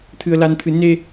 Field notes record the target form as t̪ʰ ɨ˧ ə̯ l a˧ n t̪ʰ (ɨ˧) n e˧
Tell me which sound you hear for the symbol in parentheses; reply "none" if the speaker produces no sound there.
ɨ˧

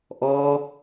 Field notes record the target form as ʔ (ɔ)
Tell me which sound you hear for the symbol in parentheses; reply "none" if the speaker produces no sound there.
ɔ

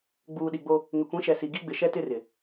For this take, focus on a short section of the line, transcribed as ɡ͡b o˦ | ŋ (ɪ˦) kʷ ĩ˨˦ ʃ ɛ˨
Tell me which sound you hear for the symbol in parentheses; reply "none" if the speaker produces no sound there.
ɪ˨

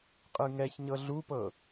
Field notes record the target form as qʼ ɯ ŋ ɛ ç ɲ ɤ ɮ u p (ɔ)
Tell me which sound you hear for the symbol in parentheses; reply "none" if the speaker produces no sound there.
ɤ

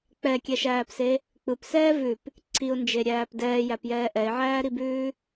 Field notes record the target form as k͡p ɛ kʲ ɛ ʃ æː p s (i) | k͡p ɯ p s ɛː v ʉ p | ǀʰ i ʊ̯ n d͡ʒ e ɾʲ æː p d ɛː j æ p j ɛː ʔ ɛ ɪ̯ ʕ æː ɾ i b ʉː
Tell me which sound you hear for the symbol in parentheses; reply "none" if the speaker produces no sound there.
e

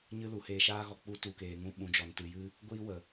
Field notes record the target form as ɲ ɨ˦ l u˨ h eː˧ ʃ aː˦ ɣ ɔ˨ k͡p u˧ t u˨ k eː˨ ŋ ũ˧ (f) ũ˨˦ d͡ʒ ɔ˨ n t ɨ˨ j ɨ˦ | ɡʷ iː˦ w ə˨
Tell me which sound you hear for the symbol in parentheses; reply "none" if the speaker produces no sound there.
ɓ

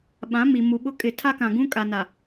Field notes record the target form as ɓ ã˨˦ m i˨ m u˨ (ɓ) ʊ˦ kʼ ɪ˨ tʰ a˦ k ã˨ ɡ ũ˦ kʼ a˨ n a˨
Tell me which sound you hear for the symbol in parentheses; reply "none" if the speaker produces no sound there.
ɓ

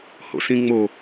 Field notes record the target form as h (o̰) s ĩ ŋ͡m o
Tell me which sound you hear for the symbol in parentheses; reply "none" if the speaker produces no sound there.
o̰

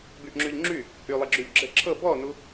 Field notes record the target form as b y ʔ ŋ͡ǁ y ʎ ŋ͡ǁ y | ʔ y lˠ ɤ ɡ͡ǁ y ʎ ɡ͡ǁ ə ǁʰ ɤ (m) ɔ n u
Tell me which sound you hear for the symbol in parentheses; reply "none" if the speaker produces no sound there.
b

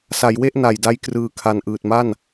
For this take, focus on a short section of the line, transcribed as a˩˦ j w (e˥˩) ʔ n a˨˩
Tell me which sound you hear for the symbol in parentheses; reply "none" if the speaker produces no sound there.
e˥˩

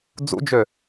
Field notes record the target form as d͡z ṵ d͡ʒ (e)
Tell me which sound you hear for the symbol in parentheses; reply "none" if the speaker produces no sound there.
ø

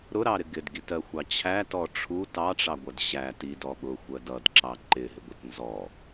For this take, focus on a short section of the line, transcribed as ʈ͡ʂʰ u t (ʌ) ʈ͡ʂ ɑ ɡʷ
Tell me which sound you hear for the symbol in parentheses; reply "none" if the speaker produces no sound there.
ɑ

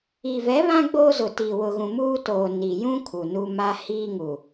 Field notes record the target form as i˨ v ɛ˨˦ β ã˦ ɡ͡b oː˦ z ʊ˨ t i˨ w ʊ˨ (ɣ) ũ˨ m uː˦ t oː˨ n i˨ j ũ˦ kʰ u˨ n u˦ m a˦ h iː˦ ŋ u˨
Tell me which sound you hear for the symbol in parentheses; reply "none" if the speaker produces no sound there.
ɣ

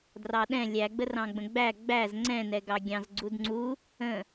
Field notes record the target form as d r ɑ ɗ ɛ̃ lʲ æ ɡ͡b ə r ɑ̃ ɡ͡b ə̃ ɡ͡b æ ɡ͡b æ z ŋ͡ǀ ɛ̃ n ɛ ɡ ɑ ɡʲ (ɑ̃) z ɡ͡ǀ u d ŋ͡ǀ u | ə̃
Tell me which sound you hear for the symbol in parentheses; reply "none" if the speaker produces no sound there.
ɑ̃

